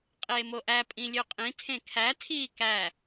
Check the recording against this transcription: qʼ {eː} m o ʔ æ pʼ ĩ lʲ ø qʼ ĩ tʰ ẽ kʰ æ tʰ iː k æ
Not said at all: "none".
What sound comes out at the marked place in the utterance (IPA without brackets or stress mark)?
eː